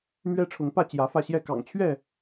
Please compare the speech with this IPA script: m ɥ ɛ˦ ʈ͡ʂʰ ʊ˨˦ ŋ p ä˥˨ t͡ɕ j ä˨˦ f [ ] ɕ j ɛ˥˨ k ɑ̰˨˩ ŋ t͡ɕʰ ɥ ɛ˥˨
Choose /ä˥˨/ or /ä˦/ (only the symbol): ä˥˨